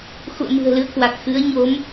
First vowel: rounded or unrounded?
rounded